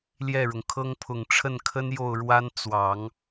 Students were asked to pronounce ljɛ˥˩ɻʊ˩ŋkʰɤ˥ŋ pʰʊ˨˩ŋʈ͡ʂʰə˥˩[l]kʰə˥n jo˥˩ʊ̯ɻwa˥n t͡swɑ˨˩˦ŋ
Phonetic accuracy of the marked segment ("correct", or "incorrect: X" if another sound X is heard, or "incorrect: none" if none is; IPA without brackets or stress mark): incorrect: n